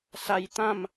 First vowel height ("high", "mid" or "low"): low